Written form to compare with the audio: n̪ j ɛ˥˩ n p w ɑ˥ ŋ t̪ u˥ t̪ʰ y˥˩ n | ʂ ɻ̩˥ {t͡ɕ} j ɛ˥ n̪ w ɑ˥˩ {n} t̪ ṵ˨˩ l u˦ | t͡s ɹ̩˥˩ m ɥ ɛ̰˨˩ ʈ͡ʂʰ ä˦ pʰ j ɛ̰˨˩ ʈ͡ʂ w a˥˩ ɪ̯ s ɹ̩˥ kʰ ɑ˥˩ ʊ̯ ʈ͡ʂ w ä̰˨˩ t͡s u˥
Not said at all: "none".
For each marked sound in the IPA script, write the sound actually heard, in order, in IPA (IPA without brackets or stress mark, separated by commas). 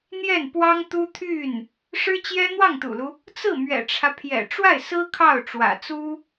t͡ɕ, ŋ